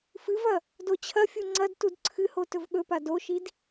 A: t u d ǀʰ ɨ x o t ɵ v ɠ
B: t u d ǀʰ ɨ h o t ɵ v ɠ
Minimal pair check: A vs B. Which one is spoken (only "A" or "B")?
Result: B